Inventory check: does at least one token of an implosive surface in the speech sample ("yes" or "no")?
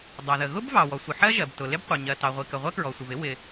no